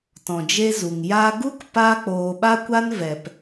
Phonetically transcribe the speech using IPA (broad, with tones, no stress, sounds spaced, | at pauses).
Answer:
t ɔ̃˨ d͡ʒ e˦ z u˨ ŋ j a˧ ɡ u˦ k p a˦ k͡p oː˧ ɓ a˦ kʷ a˦ n v ɛ˨ p